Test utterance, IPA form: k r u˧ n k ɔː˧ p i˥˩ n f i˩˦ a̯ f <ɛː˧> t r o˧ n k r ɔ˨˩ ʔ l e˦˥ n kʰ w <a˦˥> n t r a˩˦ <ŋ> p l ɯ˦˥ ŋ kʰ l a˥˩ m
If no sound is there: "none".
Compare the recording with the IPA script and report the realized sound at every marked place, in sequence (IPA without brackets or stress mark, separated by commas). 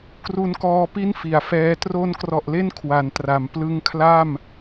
ɛː˦˥, a˩˦, m